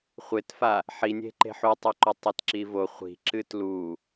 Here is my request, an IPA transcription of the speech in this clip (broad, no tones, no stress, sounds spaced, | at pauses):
χʷ e t f a | ħ i nʲ e̤ ǃ e̤ ħ u tˤ u ǃ ɵ tˤ e t ǁ i v o χʷ i̤ ǁ ɨ t l u